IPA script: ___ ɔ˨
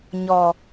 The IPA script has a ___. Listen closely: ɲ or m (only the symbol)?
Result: ɲ